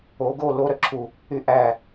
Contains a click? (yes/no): yes